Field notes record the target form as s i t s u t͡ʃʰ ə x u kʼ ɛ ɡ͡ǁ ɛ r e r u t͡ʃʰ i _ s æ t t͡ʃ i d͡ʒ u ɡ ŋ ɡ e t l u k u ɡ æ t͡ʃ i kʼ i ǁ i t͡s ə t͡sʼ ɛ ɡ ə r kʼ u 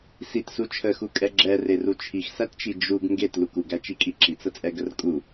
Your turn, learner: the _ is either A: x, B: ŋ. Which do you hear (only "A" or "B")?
A